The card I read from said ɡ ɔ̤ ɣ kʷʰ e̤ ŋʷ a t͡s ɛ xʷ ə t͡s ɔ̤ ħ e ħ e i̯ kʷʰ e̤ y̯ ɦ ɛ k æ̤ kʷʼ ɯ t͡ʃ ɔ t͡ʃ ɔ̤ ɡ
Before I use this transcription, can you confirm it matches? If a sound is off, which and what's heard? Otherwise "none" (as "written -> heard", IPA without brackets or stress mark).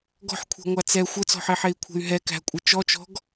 ɣ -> ħ